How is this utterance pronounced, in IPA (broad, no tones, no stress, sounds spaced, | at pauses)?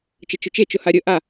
t͡ʃ ə t͡ʃ ʊ t͡ʃ e t͡ʃ ʊ h a ɾʲ ə ʔ a